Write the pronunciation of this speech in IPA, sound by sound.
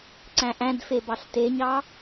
ǀ æ̃ ʔ æ̃ d f e b ɑ ɬ t e ɲ ɑ

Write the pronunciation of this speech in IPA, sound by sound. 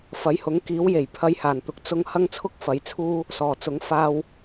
f ɐ˨˥ j h ʊ˨˥ ŋ k iː˨˥ w j e˨˩ j pʰ ɐ˧ j h aː˨˩ n t̪ ʊ˨ k̚ t͡s ʊ˧ ŋ h ɐ˥ ŋ t͡sʰ ʊ˥ k̚ f ɐ˨˥ j t͡sʰ uː˥ | s ɔː˨˩ t͡s ʊ˨˥ ŋ f aː˥ w

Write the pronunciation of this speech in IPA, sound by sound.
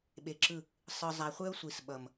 ɓ e˨ ǁ ɯ˦˨ | sˤ ɯ˨ zˤ a˨ χʷ ɛ˦ ʊ̯ sʷ i˨ s ɓ ʌ˨ m

